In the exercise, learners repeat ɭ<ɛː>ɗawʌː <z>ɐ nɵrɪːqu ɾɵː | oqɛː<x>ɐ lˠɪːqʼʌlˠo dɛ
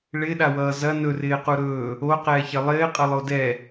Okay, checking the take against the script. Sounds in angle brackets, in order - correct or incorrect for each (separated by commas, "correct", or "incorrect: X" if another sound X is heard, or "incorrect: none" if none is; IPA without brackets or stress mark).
incorrect: ɪː, correct, incorrect: ç